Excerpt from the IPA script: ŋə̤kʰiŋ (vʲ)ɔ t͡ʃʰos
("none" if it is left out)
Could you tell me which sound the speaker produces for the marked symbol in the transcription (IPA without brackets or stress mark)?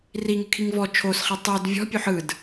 v